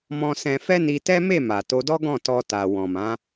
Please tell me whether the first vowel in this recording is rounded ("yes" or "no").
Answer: yes